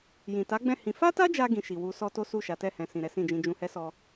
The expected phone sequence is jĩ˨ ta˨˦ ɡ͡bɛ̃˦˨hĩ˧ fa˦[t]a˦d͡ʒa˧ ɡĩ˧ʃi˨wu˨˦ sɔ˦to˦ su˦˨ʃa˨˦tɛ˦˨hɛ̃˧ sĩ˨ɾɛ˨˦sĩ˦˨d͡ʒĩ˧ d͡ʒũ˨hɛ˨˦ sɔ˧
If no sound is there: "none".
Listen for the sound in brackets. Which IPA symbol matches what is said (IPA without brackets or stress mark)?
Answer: t